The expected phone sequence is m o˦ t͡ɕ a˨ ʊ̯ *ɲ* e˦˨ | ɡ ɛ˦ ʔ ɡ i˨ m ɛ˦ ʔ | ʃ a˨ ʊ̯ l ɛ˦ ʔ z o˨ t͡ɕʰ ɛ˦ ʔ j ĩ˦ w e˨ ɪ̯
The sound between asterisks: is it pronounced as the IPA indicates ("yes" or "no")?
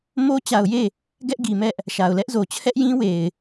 no